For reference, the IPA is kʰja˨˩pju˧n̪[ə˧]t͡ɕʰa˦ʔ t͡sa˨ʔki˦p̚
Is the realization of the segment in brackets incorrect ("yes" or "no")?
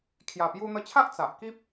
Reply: no